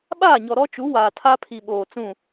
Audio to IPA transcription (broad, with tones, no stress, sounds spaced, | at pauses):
ɓ aː˦˨ ɲ ɔ˨ ɾ ɔ˦ t͡ʃ u˨˦ w aː˨ tʰ a˦ pʰ i˨ ɓ oː˨ t͡s ũ˦˨